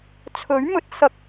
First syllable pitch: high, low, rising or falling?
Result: rising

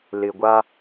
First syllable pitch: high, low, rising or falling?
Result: low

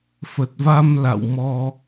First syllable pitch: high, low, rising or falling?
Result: low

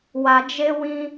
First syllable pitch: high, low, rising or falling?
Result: low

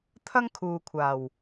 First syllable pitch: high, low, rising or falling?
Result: high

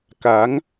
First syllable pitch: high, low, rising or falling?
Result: rising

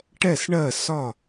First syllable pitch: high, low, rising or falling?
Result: falling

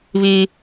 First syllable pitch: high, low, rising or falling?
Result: high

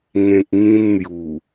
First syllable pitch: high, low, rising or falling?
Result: low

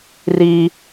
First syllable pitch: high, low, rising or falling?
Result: high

